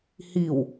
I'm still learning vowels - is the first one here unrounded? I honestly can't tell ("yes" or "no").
yes